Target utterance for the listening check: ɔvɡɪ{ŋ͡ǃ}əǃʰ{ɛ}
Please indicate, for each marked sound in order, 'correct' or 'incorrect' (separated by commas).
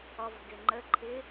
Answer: correct, incorrect